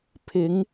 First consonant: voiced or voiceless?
voiceless